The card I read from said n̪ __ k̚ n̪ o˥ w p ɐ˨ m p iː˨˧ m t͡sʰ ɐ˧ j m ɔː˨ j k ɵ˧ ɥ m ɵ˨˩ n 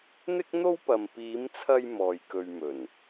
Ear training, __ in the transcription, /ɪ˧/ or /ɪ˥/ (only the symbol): ɪ˥